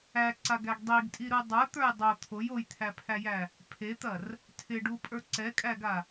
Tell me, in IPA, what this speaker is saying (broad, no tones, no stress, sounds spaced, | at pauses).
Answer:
æ ǀ a ɡ æ ɡ dˤ i ɡ tʼ i ɾ u dˤ ə˞ t̪ ə˞ j dˤ o t̪ʰ o j o j t̪ʰ æ pʰ æ j æ | pʰ e t̪ ɐ r | tʰ ɪ ɖ u pʼ ə˞ ǀ ɛ kʼ æ ɡ a